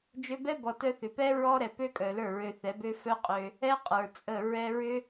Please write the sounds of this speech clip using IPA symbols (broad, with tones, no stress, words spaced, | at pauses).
d͡ʒø˧bɛ˦bɔ˨tœ˧ θʏ˨pɛ˦ ɹɔ˦ɾɛ˨pø˦kʼœ˨ lə˞˦˨ɹø˧θɛ˨˦bø˦ fœ˦qʼø˧ | ɛ˦ qʼə˞˨t͡sʼə˦˨ ɹɛ˧ɹʏ˦